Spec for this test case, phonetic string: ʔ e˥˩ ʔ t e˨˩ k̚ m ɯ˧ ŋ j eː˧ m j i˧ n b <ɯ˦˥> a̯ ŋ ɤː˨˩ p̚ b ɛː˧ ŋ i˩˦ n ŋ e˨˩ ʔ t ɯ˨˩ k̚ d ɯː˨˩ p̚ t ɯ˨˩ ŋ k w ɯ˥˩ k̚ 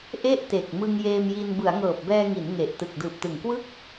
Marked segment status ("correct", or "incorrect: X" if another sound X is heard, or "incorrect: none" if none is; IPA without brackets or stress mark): incorrect: ɯ˩˦